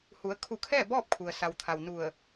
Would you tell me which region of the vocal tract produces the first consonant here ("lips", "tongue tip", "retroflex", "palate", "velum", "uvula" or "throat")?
throat